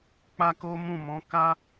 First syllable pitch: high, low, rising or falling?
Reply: high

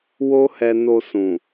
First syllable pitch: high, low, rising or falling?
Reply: high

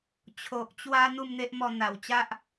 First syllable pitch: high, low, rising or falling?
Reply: low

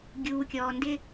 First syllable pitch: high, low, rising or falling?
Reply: low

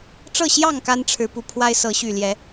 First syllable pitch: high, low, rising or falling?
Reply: falling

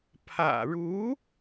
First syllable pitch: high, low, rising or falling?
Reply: low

